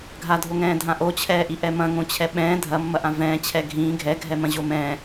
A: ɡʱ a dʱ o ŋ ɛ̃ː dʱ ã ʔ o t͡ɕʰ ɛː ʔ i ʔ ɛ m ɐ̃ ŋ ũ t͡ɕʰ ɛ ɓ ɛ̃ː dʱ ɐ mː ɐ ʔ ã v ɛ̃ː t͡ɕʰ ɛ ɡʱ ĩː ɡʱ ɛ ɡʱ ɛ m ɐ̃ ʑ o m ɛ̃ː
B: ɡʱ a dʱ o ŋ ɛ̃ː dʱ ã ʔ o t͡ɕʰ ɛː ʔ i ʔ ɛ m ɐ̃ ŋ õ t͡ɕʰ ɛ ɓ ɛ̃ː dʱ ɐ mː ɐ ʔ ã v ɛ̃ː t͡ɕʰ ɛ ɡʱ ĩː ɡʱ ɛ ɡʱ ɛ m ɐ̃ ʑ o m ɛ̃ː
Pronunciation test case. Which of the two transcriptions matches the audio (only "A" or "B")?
B